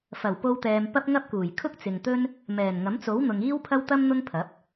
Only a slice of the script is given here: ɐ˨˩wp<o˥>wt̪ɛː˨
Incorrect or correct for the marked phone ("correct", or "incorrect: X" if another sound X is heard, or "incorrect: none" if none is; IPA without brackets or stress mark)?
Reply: incorrect: o˧